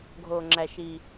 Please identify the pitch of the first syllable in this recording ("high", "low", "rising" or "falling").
low